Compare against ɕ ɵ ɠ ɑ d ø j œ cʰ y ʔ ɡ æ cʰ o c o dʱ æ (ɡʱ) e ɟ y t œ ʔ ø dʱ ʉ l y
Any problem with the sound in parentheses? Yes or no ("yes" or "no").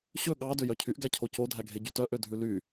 no